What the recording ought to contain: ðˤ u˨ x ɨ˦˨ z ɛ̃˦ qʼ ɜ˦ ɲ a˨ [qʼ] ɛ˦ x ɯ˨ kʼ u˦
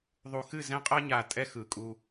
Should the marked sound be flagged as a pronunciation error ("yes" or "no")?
yes